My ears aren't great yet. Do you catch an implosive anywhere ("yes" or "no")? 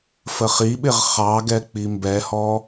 yes